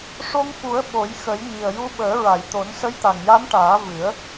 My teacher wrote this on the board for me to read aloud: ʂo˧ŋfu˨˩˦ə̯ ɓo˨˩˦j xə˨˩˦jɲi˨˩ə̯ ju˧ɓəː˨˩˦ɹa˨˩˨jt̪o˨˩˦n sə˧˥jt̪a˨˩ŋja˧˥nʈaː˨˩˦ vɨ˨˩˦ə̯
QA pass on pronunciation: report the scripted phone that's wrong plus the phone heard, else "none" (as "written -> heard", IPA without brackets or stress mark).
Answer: none